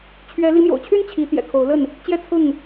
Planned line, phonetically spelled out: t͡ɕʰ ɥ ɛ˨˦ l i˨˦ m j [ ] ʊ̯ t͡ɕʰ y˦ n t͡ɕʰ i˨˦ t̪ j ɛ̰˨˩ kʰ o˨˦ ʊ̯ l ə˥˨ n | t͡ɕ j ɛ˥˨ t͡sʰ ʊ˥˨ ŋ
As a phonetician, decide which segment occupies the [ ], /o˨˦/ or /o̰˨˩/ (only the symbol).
o̰˨˩